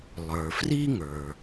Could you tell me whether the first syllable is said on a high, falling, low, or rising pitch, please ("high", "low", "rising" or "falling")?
low